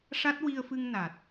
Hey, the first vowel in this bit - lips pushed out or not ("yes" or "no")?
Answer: no